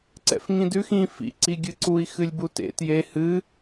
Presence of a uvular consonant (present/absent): absent